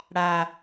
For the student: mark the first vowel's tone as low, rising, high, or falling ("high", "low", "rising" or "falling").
low